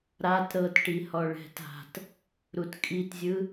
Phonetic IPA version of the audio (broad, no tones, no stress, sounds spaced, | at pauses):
ɾ a t ɾ ɤ t ʈ i h ɔ ɭ ɛ̤ t a̤ t | ɾ u t kʼ i t zʲ ɯ